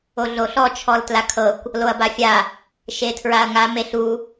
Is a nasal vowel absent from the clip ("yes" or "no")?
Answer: yes